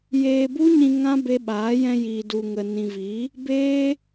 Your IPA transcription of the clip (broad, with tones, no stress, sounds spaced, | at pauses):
j eː˧ b u˦ ɲ ĩ˧ ŋ ã˦ b e˧ ɓ aː˨˦ j ɛ̃˧ j iː˨ d u˨ ŋ ə˨ n ĩ˨ v i˨˦ | b eː˦